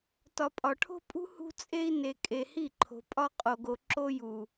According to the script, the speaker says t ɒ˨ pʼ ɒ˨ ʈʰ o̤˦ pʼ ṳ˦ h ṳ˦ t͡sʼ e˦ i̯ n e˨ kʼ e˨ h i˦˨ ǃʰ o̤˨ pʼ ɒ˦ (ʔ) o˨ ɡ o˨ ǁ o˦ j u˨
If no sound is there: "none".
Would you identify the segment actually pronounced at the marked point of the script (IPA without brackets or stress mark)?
qʼ